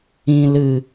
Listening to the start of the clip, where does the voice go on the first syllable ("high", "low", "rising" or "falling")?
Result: low